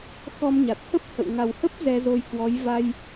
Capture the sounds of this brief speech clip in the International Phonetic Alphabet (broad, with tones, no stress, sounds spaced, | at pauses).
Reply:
x ɔ˧ m ɲ a˨˩ t̚ h ə˦˥ p̚ h ə̰˧˨ w ŋ a˨˩ w h ə˦˥ p̚ z ɛ˧ z o˧ j k w ɔ˨˦ j v a˧ j